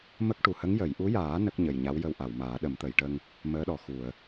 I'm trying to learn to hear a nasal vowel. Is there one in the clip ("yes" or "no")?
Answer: no